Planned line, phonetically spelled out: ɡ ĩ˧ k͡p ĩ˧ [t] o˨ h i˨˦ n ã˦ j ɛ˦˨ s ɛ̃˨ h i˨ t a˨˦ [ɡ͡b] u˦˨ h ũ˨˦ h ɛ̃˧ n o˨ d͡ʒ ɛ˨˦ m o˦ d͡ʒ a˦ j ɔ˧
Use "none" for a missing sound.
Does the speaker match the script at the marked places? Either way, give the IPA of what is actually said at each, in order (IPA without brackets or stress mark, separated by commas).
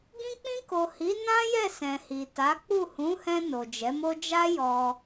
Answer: k, k͡p